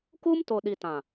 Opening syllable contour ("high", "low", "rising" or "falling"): high